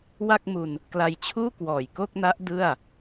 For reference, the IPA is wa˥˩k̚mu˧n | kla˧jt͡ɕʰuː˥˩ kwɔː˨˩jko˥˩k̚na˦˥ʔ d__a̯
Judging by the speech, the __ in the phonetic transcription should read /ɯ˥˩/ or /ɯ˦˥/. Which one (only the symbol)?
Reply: ɯ˥˩